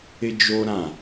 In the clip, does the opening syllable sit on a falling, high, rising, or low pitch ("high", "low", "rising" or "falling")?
high